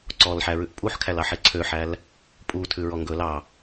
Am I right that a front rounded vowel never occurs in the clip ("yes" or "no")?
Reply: no